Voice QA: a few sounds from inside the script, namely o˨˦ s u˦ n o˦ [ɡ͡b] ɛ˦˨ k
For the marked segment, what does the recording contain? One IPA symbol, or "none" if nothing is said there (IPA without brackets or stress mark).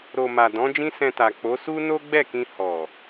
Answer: ɡ͡b